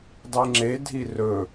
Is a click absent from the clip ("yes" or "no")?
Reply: no